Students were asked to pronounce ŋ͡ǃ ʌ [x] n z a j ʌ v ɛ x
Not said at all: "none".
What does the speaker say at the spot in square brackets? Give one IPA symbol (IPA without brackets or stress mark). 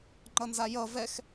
none